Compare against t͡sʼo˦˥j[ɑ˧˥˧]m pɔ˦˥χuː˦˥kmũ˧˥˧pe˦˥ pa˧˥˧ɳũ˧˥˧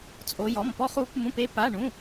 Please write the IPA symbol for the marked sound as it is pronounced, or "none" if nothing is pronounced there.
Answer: ɔ˧˥˧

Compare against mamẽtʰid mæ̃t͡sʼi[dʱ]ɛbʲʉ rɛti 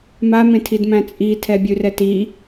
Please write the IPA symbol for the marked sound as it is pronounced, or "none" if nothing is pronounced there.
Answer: tʰ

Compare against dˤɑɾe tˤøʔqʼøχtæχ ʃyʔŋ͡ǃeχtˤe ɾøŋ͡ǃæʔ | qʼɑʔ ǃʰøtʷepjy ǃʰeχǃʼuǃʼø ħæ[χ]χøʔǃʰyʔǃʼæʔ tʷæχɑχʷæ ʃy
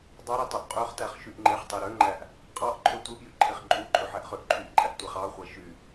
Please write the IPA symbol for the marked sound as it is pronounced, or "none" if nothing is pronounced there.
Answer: ʔ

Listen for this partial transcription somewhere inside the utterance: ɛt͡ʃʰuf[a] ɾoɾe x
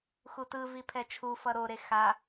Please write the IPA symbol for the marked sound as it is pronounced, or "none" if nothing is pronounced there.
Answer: ʌ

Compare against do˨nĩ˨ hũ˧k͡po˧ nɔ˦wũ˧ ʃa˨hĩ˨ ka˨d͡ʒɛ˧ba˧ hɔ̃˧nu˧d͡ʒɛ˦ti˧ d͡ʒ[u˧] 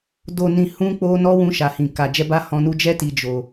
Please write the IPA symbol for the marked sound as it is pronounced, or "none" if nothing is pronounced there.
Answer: o˧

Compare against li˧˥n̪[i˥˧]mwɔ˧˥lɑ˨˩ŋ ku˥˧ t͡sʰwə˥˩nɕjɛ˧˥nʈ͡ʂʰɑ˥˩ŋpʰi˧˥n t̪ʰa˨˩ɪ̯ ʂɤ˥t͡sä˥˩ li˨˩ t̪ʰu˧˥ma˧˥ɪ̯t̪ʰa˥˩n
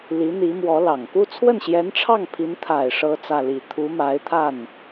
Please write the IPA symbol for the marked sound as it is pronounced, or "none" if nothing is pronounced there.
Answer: i˧˥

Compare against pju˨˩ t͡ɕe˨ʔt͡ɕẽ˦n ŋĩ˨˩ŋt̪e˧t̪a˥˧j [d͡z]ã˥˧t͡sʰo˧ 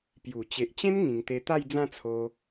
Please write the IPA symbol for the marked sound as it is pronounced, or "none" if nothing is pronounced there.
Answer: d͡z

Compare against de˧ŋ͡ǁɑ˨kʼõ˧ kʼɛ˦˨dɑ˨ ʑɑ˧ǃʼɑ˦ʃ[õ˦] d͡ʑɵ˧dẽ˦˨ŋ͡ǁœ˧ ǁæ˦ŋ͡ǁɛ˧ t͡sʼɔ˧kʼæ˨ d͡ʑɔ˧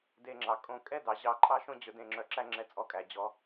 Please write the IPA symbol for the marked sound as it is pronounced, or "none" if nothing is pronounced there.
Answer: õ˦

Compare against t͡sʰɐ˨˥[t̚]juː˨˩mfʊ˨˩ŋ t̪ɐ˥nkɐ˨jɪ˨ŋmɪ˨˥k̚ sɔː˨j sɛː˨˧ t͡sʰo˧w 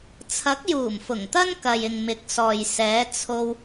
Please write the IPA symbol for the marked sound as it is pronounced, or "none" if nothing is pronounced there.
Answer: k̚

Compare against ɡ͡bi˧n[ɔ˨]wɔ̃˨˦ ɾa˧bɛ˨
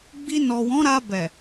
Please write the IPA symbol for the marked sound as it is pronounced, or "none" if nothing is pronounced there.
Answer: ɔ˨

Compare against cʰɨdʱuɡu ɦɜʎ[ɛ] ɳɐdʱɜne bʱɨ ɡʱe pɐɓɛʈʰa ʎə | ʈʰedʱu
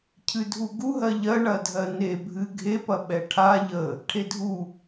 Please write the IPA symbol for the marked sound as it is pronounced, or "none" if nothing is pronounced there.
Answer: ɜ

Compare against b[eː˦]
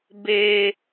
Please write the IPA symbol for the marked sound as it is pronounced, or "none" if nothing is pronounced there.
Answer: eː˦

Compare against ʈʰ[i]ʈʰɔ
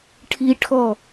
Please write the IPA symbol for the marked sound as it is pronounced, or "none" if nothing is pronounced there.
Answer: i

